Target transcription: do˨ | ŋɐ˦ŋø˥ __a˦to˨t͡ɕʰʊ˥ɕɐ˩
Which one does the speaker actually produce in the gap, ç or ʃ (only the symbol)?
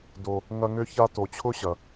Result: ç